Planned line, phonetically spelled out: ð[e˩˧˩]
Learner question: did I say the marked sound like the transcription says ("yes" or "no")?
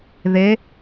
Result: no